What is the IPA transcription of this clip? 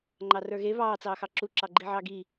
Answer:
ŋ͡ǃ ɑ r ə˞ ɣ e β ɑː t͡s ɑː x ɑ ǁ u ǁ ɑ ɡ͡ǃ i ʕ ɑ ɡ i

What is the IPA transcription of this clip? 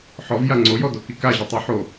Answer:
ħ ɔ v j a ŋ͡ǀ o j ɔ d o k i k a ʑ ɔ tˤ i ħ o

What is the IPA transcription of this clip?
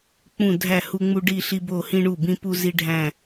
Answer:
k͡p ũ˧˩ dʱ æ˧˩ h u˧ ŋ͡m u˧ ɖ i˧˩ ɬ i˧ b o˧˩ h ĩ˧ ɳ u˧˩ b ĩ˧ p u˧ z i˧ ɖʱ æ̃˧˩

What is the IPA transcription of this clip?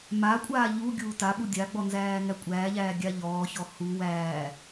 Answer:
m a kʷʼ aː ʎ u ɡʲ uː t a ɓ u dʲ a ɡ͡b ɔ n z æː ŋ æ kʷʼ æː ʎ æː ɡʲ a ʎ ɔː ç ɔ h u w æː

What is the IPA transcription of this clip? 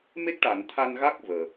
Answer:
m e˦˥ k̚ ʈ a˨˩˨ n t̪ʰ a˧ n ɣ a˦˥ k̚ v əː˨˩

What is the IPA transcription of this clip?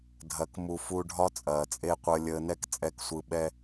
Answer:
dʱ ɐ˨ k m u˨ f u˧ ɖʱ ɒ˦ t͡sʼ ɐː˨ t͡sʼ e˦ qʷ əː˧ lʲ əː˨ n ɛ˧ k t͡sʼ ɛ˨ k sʷ ɯ˨ ɓ ɛ˧

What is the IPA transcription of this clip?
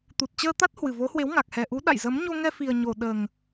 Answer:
t̪ u˨˩ t̚ t͡ɕ əː˧ t̪ a˦˥ t̚ h w ɨ˨˩ v o˨˦ h w e˨˦ w ŋ a˨˩ k̚ h ɛ˨˩ ʔ u˨˦ ɗ a̰˧˨ j z ə˨˦ m ɲ o˧ ŋ ɛ˧ f i˨˩ ə̯ ɲ o˨˩ ɗ əː˨˩ ŋ

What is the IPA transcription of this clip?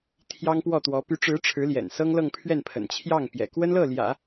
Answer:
t̪ʰ j ɑ˥ ŋ p w ɔ˥˩ t̪ w ɔ˧˥ p y˧˥ ʈ͡ʂ ɻ̩˧˥ ʈ͡ʂʰ ɻ̩˧˥ l j ɛ̰˨˩ n s ɤ˥ ŋ l ɤ˥˧ ŋ pʰ ɥ ɛ˥˩ n pʰ ə̰˨˩ n t͡ɕʰ j ɑ˥˩ ŋ p j ɛ̰˨˩ k w ə˥ n l ɤ˥˩ l j ä̰˨˩˦

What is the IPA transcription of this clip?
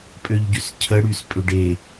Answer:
pʼ ø ʎ ɟ y s cʰ ə ɽ y s pʼ ʏ ɖ e

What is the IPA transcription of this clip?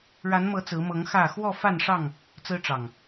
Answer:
ɻ a˨˦ n m ɤ˨˦ t͡s ɹ̩˨˦ m ɤ˨˦ ŋ x ä˥˨ x w ɔ˥˨ f a˥˨ n ʂ ɑ˥˨ ŋ | t͡s ɹ̩˦ ʈ͡ʂ ɑ˨˩ ŋ

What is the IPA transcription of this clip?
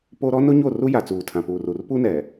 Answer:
p o˦ ɾ ɔ˦ n ʊ˦ ɲ o˦˨ r u˦ j a˨ t͡s uː˨ tʰ ã˨ p uː˨ r u˨ r p u˦ n ɛ˨

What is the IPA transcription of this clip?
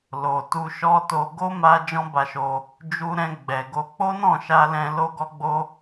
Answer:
l o˨ t u˧ ʃ ɔ˦ t o˧ ɡ o˦ m a˧ d͡ʒ ɔ̃˦ b a˧ ʃ o˧ | d͡ʒ u˧ ɾ ɛ̃˧ ɡ͡b ɛ˨ ɡ o˧ k͡p o˦ n ɔ̃˦˨ ʃ a˧ l ɛ̃˧ l o˦ ɡ ɔ˦ ɡ͡b o˦

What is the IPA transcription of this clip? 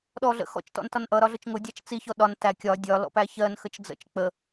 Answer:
ɗ ɔ ɮ ə̰ x ɔ̰ t͡ʃ t ɔ̰ n t ɒ n ʔ ʌ ɾ ɒ ɮ ʊ t͡ʃ ŋ ʊ dʲ ɑ t͡ʃ t͡s i ç ɔ ɗ ɒ n t æ kʲ ɒ dʲ ɒ l ɔ̰ p æ ç ɜ n x ə t͡ʃ d͡z ə̰ t͡ʃ k͡p ə

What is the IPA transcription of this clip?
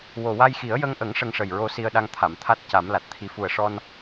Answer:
w o˨˩ w a˧ j x i˨˩˦ ə̯ j ə˧ ŋ ʔ ə˨˩˦ ŋ ʂ ə˧ ŋ ʂ ə˨˩ j ɹ o˧ s i˧ ə̯ ɗ a˧ ŋ t̪ʰ a˨˩˨ m t̪ʰ a˦˥ t̚ c a˨˩˦ m l a˨˩ t̚ t̪ʰ i˧˥ f u˨˩ ə̯ ʂ ɔ˧ n

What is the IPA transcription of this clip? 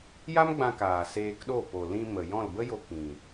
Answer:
j a˦ m ɡ͡b ã˧ k aː˨ s eː˧ k ɗ o˦˨ p o˨ l ĩ˧ m ə˨ j ɔ̃˦˨ l b ə˦ j o˧ k ĩ˨

